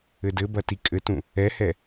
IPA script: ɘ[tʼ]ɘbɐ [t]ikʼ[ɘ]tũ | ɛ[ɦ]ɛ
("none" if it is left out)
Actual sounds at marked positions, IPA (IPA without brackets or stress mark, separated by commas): d, t, ɘ, h